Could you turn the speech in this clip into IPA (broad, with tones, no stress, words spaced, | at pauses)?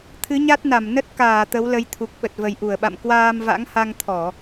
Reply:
t̪ʰɨ˨˦ɲa˦˥t̚na˧˩mnə˦˥t̚ kaː˧˩ t̪ə˨˦wlə˨˦jt̪ʰu˨˩k̚ ɓə˨˩t̚və˨˩jʔu˧˩ə̯ɓa̰˧˨m kwaː˧mva̰˧˥ŋ ha˧ŋt̪ʰɔ˧˩˨